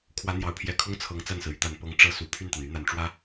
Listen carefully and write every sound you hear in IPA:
kʰwä˧˥n̪jɑ˨˩ʊ̯pʰjɛ˧˥ kʰʊ˥ŋ t͡sʰɤ˧˥ŋt͡sa˥˩nsɹ̩˩ y˥˩t̪a˨˩n pɤ˧˥ŋ ʈ͡ʂɤ˥ su˨˩ pʰy˥˩nt̪a˩ny˧˥ n̪a˨˩nʈ͡ʂwä˥

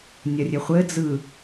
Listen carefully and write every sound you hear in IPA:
nʲɐrʲɘχʷɘ d͡zɯ

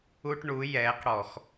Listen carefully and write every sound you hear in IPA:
u˦ʈɳu˨˦ jɛː˨˦q ɽɔ˧˩˧x

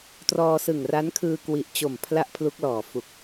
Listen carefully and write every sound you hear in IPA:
trɔː˧sɯ˨˩ŋ ra˦˥nkʰɯː˧ kwi˨˩ʔ t͡ɕo˨˩mpʰla˦˥ʔ pʰlu˦˥k̚lɔː˨˩fu˨˩k̚

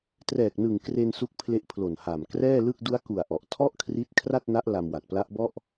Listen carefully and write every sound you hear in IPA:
trɛː˨˩k̚nɯ˨˩ŋ kre˧n su˦˥k̚pʰle˦˥ʔpʰlo˨˩n ha˨˩m krɛː˥˩lɯ˥˩k̚ du˦˥a̯ku˨˩a̯ ʔɔ˨˩ʔ tʰɔ˥˩ʔkʰri˦˥t̚ kʰra˥˩t̚na˦˥ʔ la˧mwa˨˩t̚pla˦˥ʔbɔ˥˩ʔ

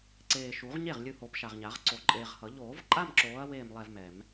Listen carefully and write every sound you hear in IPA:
ǀeː˨ʃu˨˩˦ʁɲe˥˩ʁ lʲɯ˥˧ho˨˦pʃa˨ʁ ɲa˨˩˦ʁǀo˨˩˦ǃʼeː˨ʁ hʌ˨˩˦ ʎoː˨˩˦vǃʼa˥˧mǁoː˨˦ɐ̯ weː˥˧mlˠɛ˥˧vmɛ˨˩˦m

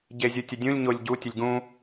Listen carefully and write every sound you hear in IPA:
ɟezʲɯtʲədʲũlʲ ɲolʲɟu tʲəlʲɡũ

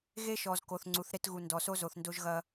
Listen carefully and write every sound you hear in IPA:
ɣe˦ʃɔ˨z ko˨θŋ͡ǀu˨θ ɾe˦tɣu˨ndɔ˨ so˦zo˨θ ndo˦ʒɣɐ˦

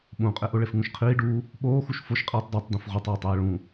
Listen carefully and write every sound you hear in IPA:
ɓũqʼeʔʊ ɭefŋũʃqʰiːɖuː | ɓoːxuʃ foʃqʼiːtˤ də˞tˤ dũfʁotˤjetˤ iːɭũ

